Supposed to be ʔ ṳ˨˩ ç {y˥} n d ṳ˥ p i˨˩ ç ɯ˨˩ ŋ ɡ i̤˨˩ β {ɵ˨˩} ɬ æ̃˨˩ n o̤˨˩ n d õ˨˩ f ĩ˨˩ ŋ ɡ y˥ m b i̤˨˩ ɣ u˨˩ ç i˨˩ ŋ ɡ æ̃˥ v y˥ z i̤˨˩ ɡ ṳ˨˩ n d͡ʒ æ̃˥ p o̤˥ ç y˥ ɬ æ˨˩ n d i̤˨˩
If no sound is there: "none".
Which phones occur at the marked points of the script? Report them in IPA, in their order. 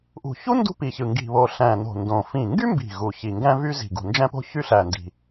u˥, o˨˩

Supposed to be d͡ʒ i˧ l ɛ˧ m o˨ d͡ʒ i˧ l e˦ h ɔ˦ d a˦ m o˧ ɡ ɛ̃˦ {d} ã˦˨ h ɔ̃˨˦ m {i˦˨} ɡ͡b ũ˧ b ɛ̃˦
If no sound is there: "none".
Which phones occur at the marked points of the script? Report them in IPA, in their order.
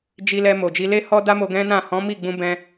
n, i˦˨

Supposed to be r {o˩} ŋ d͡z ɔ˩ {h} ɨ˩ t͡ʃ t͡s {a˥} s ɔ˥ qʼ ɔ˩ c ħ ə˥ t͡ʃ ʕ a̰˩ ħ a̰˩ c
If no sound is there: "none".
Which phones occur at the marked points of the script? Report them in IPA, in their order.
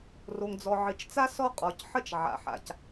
o˩, ʕ, a˥

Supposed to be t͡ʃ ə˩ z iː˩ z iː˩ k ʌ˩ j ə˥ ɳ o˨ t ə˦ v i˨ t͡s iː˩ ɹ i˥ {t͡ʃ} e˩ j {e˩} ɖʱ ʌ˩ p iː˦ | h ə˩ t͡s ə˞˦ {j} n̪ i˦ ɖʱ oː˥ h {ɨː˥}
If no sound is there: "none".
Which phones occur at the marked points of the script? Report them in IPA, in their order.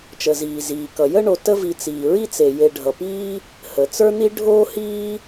t͡s, e˨, none, iː˥

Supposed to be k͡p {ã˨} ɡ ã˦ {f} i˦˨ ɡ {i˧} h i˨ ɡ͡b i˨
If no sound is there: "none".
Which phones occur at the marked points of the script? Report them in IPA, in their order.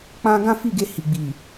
ã˧, f, e˧

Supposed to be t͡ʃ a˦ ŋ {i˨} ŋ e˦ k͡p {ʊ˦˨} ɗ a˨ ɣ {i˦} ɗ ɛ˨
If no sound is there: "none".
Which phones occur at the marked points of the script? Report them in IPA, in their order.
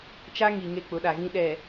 i˨, ʊ˨˦, ĩ˦

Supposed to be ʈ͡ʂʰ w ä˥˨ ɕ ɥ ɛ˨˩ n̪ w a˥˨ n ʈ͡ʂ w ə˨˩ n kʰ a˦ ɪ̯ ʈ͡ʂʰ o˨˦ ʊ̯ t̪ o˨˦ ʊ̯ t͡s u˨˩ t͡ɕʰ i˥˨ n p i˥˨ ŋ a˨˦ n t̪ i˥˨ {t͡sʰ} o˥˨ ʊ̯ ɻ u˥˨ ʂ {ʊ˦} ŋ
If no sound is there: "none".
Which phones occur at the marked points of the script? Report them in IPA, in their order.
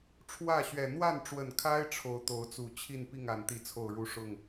t͡sʰ, ʊ˥˨

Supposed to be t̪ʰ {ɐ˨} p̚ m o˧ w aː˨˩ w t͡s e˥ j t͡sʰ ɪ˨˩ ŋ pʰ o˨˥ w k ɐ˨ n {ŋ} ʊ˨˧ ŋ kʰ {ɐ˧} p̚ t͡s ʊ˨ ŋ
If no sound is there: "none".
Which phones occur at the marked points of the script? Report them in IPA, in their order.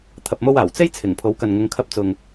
ɐ˨, ŋ, ɐ˧

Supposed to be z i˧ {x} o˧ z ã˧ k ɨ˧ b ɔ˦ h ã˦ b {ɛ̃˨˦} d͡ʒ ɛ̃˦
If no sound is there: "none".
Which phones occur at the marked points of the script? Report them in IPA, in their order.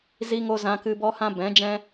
ŋ, ɛ̃˨˦

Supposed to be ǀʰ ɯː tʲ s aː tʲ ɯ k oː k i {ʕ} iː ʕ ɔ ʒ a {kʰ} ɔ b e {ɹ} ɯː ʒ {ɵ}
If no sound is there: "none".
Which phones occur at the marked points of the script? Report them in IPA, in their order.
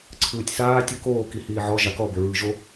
h, k, ɹ, o

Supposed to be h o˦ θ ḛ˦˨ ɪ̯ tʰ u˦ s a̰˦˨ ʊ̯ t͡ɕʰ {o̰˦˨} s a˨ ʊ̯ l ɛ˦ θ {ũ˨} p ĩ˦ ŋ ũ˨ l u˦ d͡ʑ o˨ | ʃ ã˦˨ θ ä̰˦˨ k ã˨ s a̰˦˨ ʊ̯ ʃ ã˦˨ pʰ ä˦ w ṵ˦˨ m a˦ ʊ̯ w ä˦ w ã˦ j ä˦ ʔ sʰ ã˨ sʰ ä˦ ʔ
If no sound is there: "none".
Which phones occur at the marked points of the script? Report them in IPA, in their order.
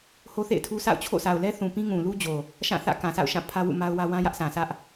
o̰˦˨, ũ˨

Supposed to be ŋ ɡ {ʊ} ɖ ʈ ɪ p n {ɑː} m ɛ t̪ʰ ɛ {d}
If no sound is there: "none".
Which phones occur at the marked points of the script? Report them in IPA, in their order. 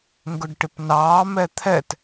ʊ, ɑː, t

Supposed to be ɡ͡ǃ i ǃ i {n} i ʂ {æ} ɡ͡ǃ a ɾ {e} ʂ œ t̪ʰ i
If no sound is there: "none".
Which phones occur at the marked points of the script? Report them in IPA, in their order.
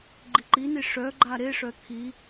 n, œ, e

